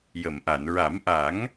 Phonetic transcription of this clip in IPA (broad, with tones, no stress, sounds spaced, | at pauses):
j ə˨˩˨ m ʔ a˨˩˨ n ɹ a˨˩˦ m ʔ a˨˩˦ ŋ